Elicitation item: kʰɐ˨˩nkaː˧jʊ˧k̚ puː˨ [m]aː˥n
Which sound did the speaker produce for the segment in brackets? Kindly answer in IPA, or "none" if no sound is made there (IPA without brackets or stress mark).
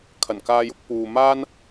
m